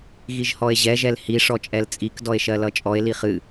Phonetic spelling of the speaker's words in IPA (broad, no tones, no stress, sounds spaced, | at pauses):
ɣ i ʒ h ɔ e̯ ʑ ɛ ʒ ɛ l h i ʂ ɔ t͡ʃʼ ɛ l t͡sʼ i k d ɔ e̯ ʃ ɜ l ʌ t͡ʃʼ ɔ e̯ l i χ ɨ